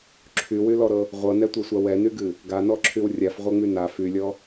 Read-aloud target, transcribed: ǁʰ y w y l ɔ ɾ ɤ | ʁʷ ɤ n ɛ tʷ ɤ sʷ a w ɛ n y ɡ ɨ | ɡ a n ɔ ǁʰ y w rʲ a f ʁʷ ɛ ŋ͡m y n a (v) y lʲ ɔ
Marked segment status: incorrect: f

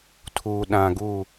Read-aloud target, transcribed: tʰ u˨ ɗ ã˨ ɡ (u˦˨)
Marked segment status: correct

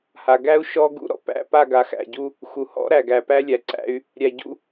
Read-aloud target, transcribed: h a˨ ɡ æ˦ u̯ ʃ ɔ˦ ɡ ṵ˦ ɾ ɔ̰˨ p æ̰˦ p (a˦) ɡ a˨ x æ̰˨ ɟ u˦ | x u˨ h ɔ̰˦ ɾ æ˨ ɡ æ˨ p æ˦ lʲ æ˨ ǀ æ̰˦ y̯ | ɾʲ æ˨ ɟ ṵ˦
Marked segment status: incorrect: a˦˨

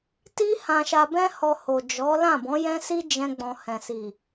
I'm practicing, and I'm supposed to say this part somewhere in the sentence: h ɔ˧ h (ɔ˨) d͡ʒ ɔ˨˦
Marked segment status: incorrect: o˨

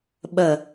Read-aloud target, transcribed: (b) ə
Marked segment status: incorrect: ɓ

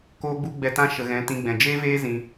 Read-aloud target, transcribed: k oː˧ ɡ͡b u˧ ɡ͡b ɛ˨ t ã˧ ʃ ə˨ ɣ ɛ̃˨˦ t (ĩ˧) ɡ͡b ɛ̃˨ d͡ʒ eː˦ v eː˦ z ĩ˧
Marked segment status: correct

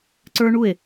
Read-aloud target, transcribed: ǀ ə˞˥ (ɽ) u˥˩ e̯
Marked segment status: incorrect: ɳ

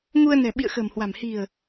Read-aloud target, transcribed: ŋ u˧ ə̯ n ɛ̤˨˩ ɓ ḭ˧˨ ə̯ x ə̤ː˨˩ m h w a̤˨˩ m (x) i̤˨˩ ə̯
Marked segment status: incorrect: h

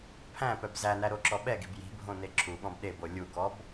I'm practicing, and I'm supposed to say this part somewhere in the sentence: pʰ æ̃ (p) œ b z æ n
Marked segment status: correct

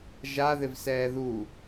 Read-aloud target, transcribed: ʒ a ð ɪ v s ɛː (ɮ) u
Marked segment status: incorrect: ð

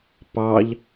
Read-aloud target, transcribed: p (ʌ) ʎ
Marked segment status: incorrect: ɑ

